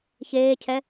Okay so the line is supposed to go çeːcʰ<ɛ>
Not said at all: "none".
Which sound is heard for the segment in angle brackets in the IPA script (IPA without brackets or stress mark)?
ɛ